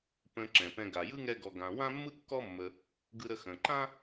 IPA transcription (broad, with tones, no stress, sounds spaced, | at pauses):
p ə̃˧ ǁ ɛ̃˩ p ɛ̃˧ ɡ a˩ j ɯ˥ ŋ ɛ˥ ɡ ɔ˧ ɡ ã˧ w ã˥ mː ɯ˥ kː ɔ˥ mː ə˧ | ɡ ɯ˧ ɾ ə˧ x ə̃˩ ǃ ã˥